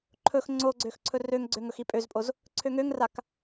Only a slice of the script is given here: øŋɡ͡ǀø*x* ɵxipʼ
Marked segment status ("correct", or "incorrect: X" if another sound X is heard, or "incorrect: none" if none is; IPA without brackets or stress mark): incorrect: ŋ